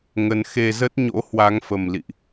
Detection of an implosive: absent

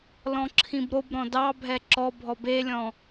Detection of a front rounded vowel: absent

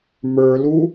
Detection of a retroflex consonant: absent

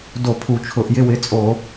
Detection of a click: absent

